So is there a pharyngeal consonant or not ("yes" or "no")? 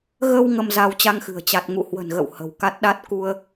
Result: no